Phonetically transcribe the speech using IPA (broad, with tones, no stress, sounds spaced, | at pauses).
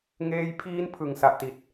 ŋ eː˧ j pʰ iː˦˥ n pʰ ɯ˨˩ ŋ s a˨˩ ʔ t i˨˩ t̚